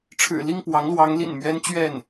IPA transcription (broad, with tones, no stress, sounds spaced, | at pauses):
ʈ͡ʂʰ ɻ̩˨˩ l i˥˩ ŋ p w ɑ˧˥ ŋ l w ɑ˧˥ ŋ l ḭ˨˩ n m ɥ ɛ˥ n t͡ɕ ɥ ɛ˥˩ n